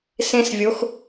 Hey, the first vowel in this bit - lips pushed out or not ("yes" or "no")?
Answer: no